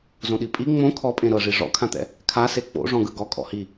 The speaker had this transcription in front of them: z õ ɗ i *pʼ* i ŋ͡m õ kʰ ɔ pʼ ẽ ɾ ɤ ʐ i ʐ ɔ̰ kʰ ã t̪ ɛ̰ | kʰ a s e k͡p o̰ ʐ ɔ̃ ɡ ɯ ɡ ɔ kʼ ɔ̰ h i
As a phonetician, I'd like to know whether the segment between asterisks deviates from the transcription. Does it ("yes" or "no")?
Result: no